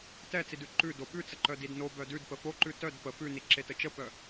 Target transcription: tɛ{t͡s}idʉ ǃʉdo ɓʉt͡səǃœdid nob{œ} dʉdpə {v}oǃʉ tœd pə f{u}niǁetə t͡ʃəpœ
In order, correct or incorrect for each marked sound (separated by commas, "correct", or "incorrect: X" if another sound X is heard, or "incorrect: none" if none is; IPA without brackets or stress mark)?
correct, correct, incorrect: f, incorrect: ʉ